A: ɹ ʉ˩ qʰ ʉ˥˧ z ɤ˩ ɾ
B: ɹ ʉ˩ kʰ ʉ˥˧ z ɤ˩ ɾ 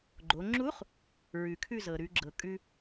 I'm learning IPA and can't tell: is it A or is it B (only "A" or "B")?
B